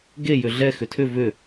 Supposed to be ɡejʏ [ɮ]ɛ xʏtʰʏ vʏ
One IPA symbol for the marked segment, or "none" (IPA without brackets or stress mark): ɮ